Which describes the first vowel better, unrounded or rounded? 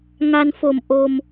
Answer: unrounded